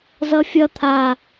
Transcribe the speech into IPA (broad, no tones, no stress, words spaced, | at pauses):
zʌfʲʌ t̪ʰa